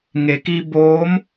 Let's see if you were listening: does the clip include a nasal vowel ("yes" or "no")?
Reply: no